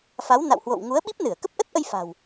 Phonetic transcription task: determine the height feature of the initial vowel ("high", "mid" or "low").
low